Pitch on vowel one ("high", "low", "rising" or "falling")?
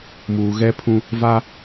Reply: low